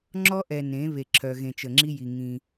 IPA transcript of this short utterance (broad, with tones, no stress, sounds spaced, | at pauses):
ŋ͡ǁ ɔ˦ ʔ ɛ˨ n ẽ˨˦ β e˨ ǁʰ œ˨ ɣ ẽ˨ t͡ʃ ə˨ ŋ͡ǁ i˦ j i˨ ŋ ĩ˦